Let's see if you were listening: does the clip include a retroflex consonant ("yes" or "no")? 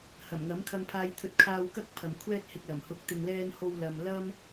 no